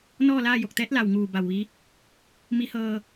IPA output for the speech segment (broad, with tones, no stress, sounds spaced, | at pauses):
n ɔː˥˨ l aː˥˨ j o˧˩ k̚ t̪ ɛː˧˥ t̚ l a˩ w ŋ uː˧˩ b a˧˩ w ʋ i˧˥ | m i˧˥ h ɤː˧